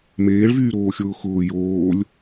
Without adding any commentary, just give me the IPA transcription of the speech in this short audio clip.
m eː ɭ v yː ɾ oː xʲ ʊː x ʊː j oː lʲ

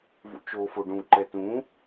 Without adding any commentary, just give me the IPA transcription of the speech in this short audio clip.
v ṵ t͡ʃ o f o ɖ ũ ǃ ɛ t ũ

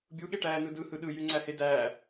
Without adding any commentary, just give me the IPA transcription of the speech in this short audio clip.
bʲ u ɠ e ʈ æː n ɯ d ɯ h ɯ ɗ ɯ j y ŋ͡ǀ æ h e d æː

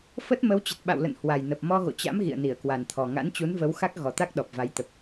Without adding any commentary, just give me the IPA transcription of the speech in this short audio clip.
f ə˦˥ t̚ m ə˨˦ w t͡ɕ ə˨˩ t̚ ɓ a̰˧˨ w l ə̰˧˨ n h w a˨˩ j n ə˨˩ p̚ m ɔ˧ ɣ o̰˧˨ t͡ɕ a̰˧˥ m ɣ ḭ˧˨ ə̯ n i˧˩ ə̯ k w a˨˩ n t̪ʰ ɔ˨˩ ŋ a̰˧˥ n t͡ɕ u˨˦ n v ə˨˦ w x a˦˥ k̚ ɣ ɔ˨˩ t̪ a˦˥ k̚ ɗ ɔ˨˩ p̚ v a˨˦ j t̪ ə˨˩ p̚

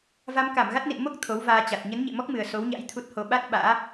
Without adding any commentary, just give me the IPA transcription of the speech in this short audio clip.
v a˧ m k a˧˩ m ɣ a˦˥ t̚ n ḭ˧˨ n m o˦˥ k̚ t̪ʰ o˨˦ w v aː˧ t͡ɕ a˨˩ t̚ ɲ ə˨˦ n ɲ ḛ˧˨ m ɔ˦˥ k̚ m ɨ˨˩ ə̯ s o˨˦ w ɲ a̰˧˥ j t̪ʰ u˦˥ t̚ h o˧ ɓ a˦˥ t̚ ɓ a̰ː˧˥

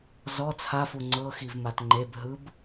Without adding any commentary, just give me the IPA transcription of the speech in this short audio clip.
z ɔ t͡sʰ a f u ŋ͡ǀ ɤ x i v m a t ŋ͡ǃ e b ɦ ɯ b

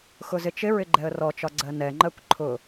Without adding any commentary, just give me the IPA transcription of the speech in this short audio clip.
x ʊ z ɪ t͡ʃ ɪ ɹ ɪ ɡ͡ǃ ɛ ə̯ r ɔ t͡ʃ ɒ ɡ͡ǀ ɜ n ɛ ŋ͡ǃ ɜ kʷ ǃʰ ʊ

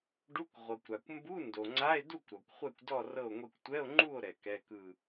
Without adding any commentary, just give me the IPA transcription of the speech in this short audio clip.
ɖ u˧˥˧ kʷ ʁʷ ɤ˩ kʷ ɾ a˩ kʷ m b u˧˥˧ n d o˩ ŋ͡ǀ a˧˥˧ e̯ d u˥˨ kʷ ɾ ɔ˩ kʷ χʷ ɛ˥˨ kʷ d ɔ˥˨ r ɤ˥˨ o̯ ŋʷ e˥˨ kʷ tʷ ɛ˧˥˧ o̯ ŋ͡ǃ u˥˨ o̯ ɾ ɛ˩ k ɛ˧˥˧ k ɯ˥˨

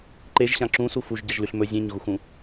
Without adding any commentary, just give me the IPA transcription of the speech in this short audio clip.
ǃ e ʒ ɕ ã ǁ ũ s u f u ʒ ɟ ɐ ʒ l ʉ ɬ m ɵ zʲ ẽ ɲ ɣ u x ũ

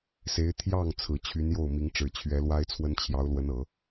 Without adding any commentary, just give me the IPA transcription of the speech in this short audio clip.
s e˧˥ ɪ̯ t̪ʰ j ɑ˥˩ ŋ t͡sʰ ɹ̩˨˩ t͡ɕʰ y˧˥ n j o˥˩ ʊ̯ m i˧˥ ŋ ʈ͡ʂ ɻ̩˨˩ t͡ɕʰ ɥ ɛ˧˥ l w a˥ ɪ̯ t͡sʰ w ə˥ n t͡ɕʰ j ɑ˧˥ ʊ̯ l w ə˧˥ n ɤ˨˩˦

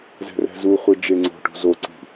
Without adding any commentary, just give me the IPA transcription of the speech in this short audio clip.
z ɛ̤ r ɛ̤ z u χʷ e d͡ʒ e ŋ͡ǀ o̤ ʈ ṳ z o ǀ i̤

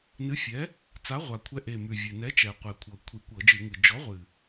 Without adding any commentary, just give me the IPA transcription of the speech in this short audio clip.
n ɨ˨˥ fʲ ɛ˨˥ | t͡s a˨˥ ʁʷ a˨˩ kʷʰ ɛ˨˥ ʔ e˨˩ m ʉ˨˩ vʲ ɨ˨˩ n ɛ˨˥ t͡ʃ ɛ˨˩ qʷ ɛ˨˩ kʷʰ ɤ˨˩ kʷʰ i˧˩˧ kʷ ɤ˧˩˧ d͡ʒ ɨ˧˩˧ ŋ ɨ˨˩ d͡ʒ ɔ˨˥ ʁʷ ɨ˨˩

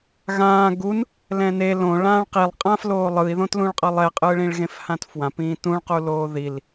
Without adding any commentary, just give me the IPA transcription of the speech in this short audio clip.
ɣ ãː ɡ u n | l ɛ̃ n e l õ ɭ ãː ɭ q i lˠ qʼ ã f l oː lˠ ɯ i̯ ð õ t l ũ ɭ qʼ ʌ lˠ ɛ qʼ ɯː ɭ ĩ ɭ ɣ ẽ f h ã t f w ã p ĩː t ũ ɭ q u l oː ð i l

